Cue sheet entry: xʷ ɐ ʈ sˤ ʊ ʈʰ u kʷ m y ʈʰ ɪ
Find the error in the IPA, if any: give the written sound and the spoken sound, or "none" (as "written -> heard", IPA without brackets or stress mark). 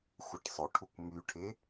none